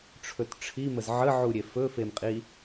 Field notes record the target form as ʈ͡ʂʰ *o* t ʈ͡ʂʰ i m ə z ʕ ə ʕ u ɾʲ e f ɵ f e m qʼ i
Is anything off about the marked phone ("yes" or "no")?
yes